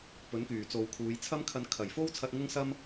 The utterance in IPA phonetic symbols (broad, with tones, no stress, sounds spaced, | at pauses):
p ɵ˨˥ n k yː˨˩ t͡s o˨ w kʰ uː˨˧ j t͡sʰ ɐ˥ m kʰ ɐ˧ n kʰ ɐ˨˩ j f o˥ w t͡sʰ ɐ˧ t̚ ŋ ʊ˥ ŋ s ɐ˥ m